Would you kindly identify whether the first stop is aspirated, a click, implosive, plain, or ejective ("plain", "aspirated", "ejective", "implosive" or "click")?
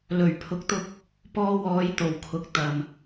aspirated